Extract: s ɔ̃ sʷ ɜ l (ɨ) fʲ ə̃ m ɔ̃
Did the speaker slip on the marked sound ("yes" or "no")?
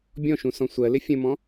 yes